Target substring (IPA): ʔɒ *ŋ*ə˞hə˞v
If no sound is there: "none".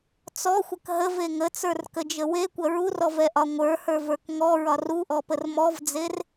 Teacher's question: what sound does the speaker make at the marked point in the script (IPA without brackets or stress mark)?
ŋʷ